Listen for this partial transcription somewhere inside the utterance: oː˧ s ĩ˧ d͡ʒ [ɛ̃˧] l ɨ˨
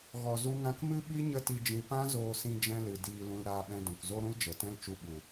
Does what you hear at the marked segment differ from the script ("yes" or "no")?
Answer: no